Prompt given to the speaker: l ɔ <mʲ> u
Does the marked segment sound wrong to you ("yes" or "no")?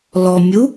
no